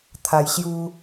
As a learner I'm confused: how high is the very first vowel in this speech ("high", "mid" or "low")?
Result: low